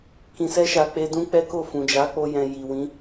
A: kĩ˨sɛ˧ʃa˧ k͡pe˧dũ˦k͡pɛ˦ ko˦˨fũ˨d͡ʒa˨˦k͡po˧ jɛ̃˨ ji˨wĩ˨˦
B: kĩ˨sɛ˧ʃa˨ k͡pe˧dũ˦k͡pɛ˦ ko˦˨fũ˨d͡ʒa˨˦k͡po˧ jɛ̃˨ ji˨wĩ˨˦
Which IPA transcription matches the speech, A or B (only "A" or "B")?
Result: B